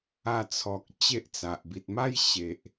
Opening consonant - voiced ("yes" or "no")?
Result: no